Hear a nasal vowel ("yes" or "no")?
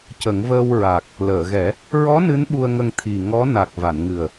no